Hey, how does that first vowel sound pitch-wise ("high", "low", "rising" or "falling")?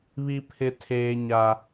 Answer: high